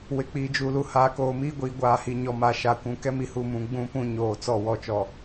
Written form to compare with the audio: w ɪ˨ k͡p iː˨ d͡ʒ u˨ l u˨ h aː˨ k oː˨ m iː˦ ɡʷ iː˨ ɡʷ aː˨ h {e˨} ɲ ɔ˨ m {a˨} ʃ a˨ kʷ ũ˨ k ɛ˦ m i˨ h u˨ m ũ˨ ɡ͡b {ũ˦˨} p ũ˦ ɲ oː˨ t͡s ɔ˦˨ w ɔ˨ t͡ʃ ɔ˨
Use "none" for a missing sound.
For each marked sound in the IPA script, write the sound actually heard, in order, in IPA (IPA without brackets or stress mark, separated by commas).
i˨, a˨, ũ˦